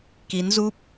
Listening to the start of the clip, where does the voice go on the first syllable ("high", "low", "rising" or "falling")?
rising